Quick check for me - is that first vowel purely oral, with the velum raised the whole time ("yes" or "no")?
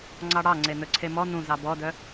yes